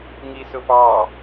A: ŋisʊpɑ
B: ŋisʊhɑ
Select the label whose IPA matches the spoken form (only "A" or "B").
A